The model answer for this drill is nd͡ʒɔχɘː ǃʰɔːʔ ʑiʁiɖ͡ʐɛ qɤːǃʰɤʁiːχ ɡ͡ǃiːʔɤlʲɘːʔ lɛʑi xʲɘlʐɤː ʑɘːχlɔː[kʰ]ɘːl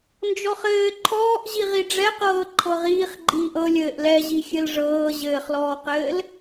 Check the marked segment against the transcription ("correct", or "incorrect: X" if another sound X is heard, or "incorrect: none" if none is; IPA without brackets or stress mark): incorrect: q